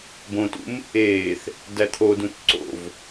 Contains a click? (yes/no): yes